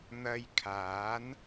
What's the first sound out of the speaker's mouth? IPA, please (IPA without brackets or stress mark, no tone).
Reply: n̪